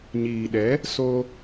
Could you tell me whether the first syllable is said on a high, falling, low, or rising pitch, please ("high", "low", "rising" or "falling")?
low